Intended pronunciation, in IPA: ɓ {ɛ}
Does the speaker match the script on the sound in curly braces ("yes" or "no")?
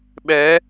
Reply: yes